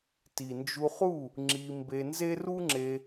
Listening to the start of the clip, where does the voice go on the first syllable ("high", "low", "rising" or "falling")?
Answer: low